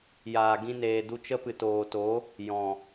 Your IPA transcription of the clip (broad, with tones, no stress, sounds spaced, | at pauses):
j aː˨ ɡ ĩ˧ n eː˨ d u˧ t͡ʃ ə˦ p ɨ˨ t oː˨ t o˨˦ | j ɔ̃˨